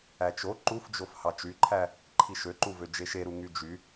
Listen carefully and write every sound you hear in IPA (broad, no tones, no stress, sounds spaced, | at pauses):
æ t͡ʃ o ǃ u f d͡ʒ o f h ɑ t͡ʃ y ǃʰ æ | ǃʰ i ʃ ø ǃ u v ø d͡ʒ e ʃ e ɾ u ŋ y d͡ʒ y